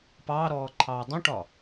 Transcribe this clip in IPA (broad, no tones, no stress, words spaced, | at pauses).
pɑːɾɔːǃʰɑː dˤũʈɒ